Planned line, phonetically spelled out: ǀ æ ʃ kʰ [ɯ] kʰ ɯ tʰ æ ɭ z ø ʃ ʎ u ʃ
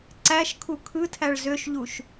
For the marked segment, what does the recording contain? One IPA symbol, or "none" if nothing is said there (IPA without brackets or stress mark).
u